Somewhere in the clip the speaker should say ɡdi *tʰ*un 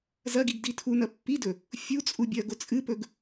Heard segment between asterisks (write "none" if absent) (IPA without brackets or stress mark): tʰ